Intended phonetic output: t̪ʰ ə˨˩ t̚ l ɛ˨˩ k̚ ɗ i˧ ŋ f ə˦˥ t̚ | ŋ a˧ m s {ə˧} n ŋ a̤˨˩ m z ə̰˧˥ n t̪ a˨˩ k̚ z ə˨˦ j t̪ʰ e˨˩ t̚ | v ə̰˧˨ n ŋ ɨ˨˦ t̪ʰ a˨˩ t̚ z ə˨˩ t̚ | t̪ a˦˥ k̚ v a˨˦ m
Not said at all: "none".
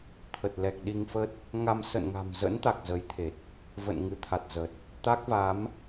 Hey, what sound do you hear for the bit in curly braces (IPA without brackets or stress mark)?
ə̰˧˨